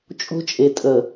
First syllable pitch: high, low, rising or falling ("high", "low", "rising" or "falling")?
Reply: high